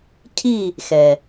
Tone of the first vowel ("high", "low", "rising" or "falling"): falling